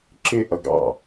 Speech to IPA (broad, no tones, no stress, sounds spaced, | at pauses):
ǁ ɪ ʔ ʌ ɡ ɑ̰